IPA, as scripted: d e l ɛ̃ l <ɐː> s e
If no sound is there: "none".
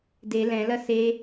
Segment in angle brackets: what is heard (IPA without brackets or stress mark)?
ɐ